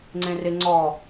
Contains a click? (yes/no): yes